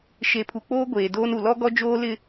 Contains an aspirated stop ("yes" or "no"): yes